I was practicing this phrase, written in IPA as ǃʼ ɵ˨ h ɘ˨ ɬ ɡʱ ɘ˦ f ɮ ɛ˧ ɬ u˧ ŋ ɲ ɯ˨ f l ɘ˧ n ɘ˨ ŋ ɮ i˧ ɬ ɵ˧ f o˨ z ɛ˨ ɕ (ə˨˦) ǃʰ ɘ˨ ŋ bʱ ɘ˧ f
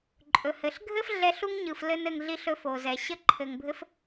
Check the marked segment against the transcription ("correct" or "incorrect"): incorrect